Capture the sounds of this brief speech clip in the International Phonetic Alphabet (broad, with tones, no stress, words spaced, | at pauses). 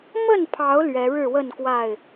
mə˥˨npʰɑ˨˦ʊ̯ lɥɛ˨˦ɻɻ̩˥˨wə˥˨nkwa˥˨ɪ̯